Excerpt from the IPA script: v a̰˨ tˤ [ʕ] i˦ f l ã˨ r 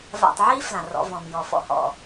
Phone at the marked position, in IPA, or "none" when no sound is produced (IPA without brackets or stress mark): ʕ